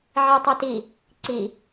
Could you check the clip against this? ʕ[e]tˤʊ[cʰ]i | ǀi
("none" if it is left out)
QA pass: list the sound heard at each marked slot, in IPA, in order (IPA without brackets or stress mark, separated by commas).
e, t